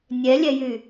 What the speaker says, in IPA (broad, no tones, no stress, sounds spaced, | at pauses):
nʲ ɛ lʲ ɛ j y